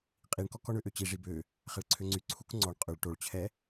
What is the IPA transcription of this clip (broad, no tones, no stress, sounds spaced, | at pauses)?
qʼ i ɳ k ɔ k ɔ ɳ ø ʔ ø t͡ɕ i ʐ i b ø | χ ɛ ɭ ǀʰ ø ŋ͡ǀ y ǀʰ u k ŋ͡ǀ ɔ ɳ qʼ ø ɭ ʈ o ɭ t͡ɕʰ ɛ